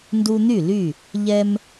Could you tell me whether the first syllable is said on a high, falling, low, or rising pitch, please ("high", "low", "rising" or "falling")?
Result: high